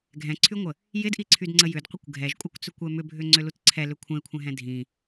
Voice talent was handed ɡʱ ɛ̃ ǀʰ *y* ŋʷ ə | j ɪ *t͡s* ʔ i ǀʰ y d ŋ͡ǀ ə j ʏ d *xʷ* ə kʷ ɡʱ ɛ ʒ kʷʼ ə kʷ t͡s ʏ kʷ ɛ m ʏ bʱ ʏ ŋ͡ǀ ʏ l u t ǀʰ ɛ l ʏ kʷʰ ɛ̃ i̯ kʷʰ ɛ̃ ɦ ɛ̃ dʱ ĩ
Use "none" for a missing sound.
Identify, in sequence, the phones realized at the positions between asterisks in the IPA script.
y, d, qʷ

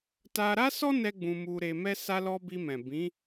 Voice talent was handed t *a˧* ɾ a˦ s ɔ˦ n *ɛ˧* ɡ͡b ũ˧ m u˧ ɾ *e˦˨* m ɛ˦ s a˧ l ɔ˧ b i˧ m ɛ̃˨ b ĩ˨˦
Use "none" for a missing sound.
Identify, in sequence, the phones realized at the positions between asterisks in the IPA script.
a˧, ɛ˦, e˧

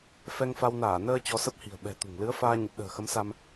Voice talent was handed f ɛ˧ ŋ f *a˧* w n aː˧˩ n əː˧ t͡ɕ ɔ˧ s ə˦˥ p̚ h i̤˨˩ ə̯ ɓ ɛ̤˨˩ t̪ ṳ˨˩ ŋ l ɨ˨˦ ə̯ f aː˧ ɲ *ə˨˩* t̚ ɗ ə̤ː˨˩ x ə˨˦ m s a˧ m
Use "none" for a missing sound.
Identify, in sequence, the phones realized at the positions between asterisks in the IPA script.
a˧, ə˨˩

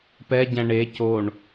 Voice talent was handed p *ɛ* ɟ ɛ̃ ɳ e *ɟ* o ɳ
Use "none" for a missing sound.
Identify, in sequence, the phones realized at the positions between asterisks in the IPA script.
ɛ, c

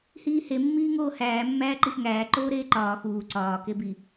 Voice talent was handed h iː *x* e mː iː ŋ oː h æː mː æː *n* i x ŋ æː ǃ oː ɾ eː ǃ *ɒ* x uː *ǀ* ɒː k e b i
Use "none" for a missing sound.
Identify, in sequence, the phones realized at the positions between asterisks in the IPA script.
h, ǃ, ɒː, ǀ

